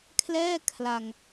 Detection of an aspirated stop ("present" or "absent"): present